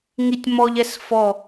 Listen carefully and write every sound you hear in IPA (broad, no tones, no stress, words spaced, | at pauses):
ŋitʲmɔʎɛs fɔ